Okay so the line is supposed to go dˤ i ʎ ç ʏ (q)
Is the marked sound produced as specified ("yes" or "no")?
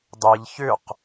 yes